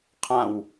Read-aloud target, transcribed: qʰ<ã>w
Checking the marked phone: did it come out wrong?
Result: no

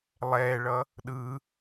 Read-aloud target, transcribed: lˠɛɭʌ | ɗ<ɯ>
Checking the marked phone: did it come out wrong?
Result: no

